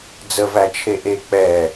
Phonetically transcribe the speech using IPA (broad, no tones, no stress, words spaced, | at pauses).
d͡zəvæt͡ʃʰe ʔe k͡pɛ